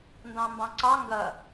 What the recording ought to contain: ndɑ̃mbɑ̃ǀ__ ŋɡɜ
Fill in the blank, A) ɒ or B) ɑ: B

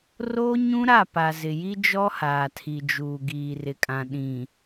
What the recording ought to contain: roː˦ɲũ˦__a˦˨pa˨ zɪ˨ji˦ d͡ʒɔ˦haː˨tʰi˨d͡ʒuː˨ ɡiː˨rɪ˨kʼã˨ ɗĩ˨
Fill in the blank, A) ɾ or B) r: A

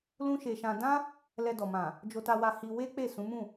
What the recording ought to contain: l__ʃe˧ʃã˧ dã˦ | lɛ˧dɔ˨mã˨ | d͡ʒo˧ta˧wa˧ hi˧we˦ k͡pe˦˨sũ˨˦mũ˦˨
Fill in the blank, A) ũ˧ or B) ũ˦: B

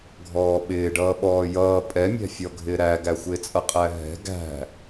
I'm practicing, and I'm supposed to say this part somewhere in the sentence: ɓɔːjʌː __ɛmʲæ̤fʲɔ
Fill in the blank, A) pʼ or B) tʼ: A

